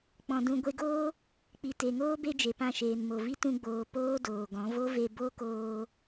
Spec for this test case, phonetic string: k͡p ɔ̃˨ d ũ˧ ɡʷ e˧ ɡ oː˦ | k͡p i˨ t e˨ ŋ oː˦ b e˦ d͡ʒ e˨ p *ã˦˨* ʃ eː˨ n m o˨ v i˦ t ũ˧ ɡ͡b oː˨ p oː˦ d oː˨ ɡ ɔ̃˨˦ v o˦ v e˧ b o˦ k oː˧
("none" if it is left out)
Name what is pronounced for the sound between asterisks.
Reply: ã˦˨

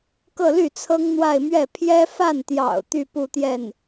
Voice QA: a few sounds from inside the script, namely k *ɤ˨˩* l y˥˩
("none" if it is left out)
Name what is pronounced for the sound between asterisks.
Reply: ɤ˥˧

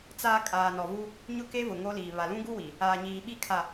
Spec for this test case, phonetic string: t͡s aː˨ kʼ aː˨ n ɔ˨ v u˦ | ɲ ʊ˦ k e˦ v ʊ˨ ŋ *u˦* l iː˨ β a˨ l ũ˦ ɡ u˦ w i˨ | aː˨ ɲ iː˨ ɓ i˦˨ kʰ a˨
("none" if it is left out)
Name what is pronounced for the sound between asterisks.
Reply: o˦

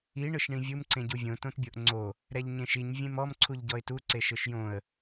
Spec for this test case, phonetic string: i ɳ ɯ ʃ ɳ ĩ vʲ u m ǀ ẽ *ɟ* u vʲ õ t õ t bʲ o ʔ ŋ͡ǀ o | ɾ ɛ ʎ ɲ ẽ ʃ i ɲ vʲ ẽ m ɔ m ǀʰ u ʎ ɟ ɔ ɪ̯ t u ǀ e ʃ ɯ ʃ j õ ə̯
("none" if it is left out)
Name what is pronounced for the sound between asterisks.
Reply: ɟ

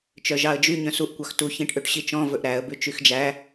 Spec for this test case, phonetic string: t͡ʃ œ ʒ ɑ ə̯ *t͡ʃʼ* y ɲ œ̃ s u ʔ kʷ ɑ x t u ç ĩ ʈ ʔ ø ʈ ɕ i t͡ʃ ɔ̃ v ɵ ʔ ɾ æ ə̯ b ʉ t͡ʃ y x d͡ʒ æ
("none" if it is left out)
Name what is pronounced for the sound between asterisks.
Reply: d͡ʒ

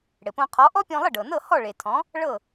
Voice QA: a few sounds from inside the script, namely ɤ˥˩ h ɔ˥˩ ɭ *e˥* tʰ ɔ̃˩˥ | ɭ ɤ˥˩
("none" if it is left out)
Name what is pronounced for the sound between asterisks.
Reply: e˩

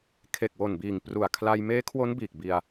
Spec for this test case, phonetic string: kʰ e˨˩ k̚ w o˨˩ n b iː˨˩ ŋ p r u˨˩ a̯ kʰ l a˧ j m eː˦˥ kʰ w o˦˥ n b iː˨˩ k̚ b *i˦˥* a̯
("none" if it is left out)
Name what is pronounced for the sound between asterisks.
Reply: i˧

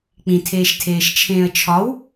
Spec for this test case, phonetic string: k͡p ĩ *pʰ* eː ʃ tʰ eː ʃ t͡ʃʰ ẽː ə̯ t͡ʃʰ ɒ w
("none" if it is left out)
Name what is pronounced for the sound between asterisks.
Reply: tʰ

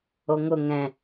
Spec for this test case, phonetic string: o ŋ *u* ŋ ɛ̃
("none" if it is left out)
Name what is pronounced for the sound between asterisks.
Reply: ʊ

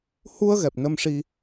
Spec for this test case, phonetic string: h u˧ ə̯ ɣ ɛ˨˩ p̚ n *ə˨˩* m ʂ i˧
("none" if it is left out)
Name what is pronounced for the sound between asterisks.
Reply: ə˧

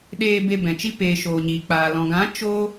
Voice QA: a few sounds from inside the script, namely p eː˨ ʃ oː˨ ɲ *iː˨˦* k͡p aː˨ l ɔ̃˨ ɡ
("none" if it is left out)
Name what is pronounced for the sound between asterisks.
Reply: iː˨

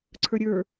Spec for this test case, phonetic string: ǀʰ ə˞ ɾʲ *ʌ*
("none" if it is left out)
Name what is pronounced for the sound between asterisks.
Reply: ə˞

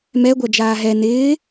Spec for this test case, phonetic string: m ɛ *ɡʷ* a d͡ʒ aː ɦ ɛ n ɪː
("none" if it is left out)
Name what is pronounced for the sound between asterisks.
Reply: ɡʷ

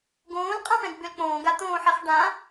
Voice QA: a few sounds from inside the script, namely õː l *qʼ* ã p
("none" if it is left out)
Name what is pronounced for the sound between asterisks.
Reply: qʼ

